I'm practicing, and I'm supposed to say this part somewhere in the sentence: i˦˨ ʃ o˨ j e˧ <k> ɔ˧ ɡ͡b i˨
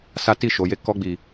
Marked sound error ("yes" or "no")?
no